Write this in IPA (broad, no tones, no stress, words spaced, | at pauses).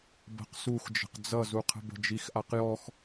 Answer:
bə̤q suxd͡ʒə̤q d͡zʌzuqʰə̤bə̤ d͡ʒixʔaq jɔx